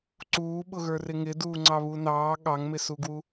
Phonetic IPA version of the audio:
ǀ uː ɓ ʊ ɣ ə˞ r ɪ ŋ ɪ d uː ŋ͡ǀ ɑ β u n ɑː ɠ ɑ ŋ m ɪ s u ɡ w u

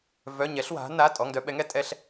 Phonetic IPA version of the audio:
v œ˩˧˩ ɲ ɛ˩˧ ɬ w a̤˩˧ n a˩˧˩ tʼ ɔ˩˧˩ ŋ d œ˦ ɓ ɛ˩˥ ŋ ɛ˦ tʼ ɛ˦ ɬ

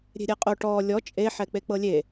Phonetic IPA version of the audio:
ɾʲ e̤ ɾʲ ɛ qʼ o ʈ ɔ lʲ ɔ t͡ʃʼ e ħ ɛ k͡p e k͡p ɤ lʲ e

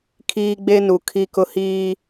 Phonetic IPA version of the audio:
kʰ iː˦ ɡ͡b e˦ n u˨ kʰ i˦ k ʊ˦ h iː˦

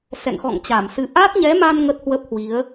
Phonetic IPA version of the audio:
s ɛ̰˧˨ ŋ x ɔ̰˧˨ ŋ t͡ɕ a˧˩ m s ɨ˧ ʔ a˦˥ t̚ ɲ ɛ˨˦ m a˧ n ŋ ə˦˥ t̚ h w ə˦˥ p̚ h w i˨˦ ə̯

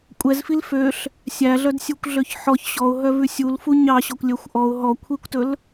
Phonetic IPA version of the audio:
kʷʼ ɛ z f i l f ø ɬ | sʲ æ ɮ œ d sʲ u kʷ ɮ ø ç ħ ɔ ç ɕ ɔ ʊ̯ ɦ œ v ʉ sʲ u l f u ɲ ɑ ɕ ɔ kʷ lʲ œ xʷ ʔ ɔ ʊ̯ ɦ ɔ kʷʰ i kʷ t ɵ l

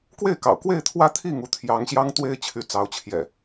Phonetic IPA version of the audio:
k w e˥˨ ɪ̯ k ɑ̰˨˩ ʊ̯ k w e˥˨ ɪ̯ t̪ʰ w ä˦ t̪ʰ i˥˨ ŋ u˥˨ t̪ʰ j ɑ˨˦ ŋ ɕ j ɑ˦ ŋ t̪ w e˦ ɪ̯ t͡ɕʰ y˨˦ t͡s ɑ˨˦ ʊ̯ t͡ɕʰ j ɛ̰˨˩

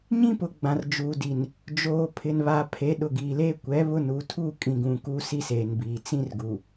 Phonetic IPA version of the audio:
ɲ ĩ˦ p ʊ˨ ɡ͡b ã˨ r d͡ʒ uː˨ d i˨ n | d͡ʒ oː˨ pʰ ɪ˨ n β aː˨ pʰ e˨˦ ɗ ʊ˨ ɡ iː˨ l eː˦ kʷ ɛ˨˦ β ʊ˦ n u˨˦ tʰ u˦˨ kʼ ĩ˨ ɡ ũ˨ k u˦ s i˦ s eː˨ n b iː˨ t͡s ĩ˦ r ɡ u˨

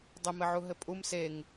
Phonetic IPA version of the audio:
dˤ ɘ m ɘ ʕ u ɦ ɘ pʼ u m s e ŋ

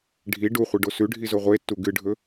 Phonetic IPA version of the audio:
ɖʱ i ɖ u χʷ i ɖ o s ʉ ɖʱ i z o ʁʷ e tː u ɡ ɨ ɖʱ ɵ

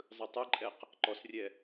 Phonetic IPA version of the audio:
zˤ ɯ tˤ ɯ ǃʼ ɛ q | ǃ ɔ s rʲ ɛ

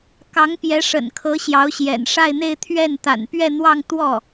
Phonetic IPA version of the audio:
k ɑ˧˥ ŋ p j ɛ˧˥ ʂ ə̰˨˩ n kʰ ɤ˧˥ ɕ j ɑ˧˥ ʊ̯ ɕ j ɛ̰˨˩ n ʂ a˥˧ ɪ̯ n̪ e˥˧ ɪ̯ t̪ʰ ɥ ɛ˥˩ n t̪ a̰˨˩ n p ɥ ɛ˥˧ n̪ w ɑ˥˧ ŋ t̪ w ɔ˥˩

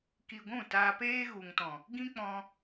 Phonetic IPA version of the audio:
k i˧ ɡʷ ũ˦˨ t aː˧ p eː˦ ɣ u˨ ŋ t ɔ̃˨ | ɡ ĩ˦ k͡p ɔ̃˧

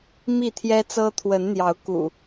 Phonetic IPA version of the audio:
m i˥˨ t̪ʰ j ɛ˦ t͡s ɤ˦ t̪ʰ w ə˨˦ n n̪ j ɑ˨˦ ʊ̯ k ṵ˨˩

